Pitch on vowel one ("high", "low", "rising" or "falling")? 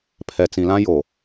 low